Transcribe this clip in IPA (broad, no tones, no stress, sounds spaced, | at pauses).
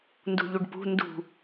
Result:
n d ṳ ʎ u ɖ p ṳ n d ṳ